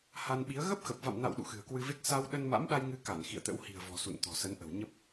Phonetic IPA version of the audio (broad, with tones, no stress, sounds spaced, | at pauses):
h a˧ n ɓ i˨˦ ə̯ ɣ ə˦˥ p̚ x ə˨˩ p̚ v a̰˧˨ m n a̰˧˨ w ɗ ṵ˧˨ x ɨ̤˨˩ ə̯ k w ɨ˧ v e˦˥ k̚ s a˧ w ɗ ə˧ n m a̰˧˥ m ɗ a˧ j ŋ ɨ˧ k a˧˩ n x ḭ˧˨ ə̯ t̪ ə̰˧˥ w h i̤˨˩ ə̯ v ɔ̤˨˩ s ṵ˧˨ n t̪ ɔ̤˨˩ s ə˨˦ n ʔ ə̤˨˩ w ɲ ə˦˥ p̚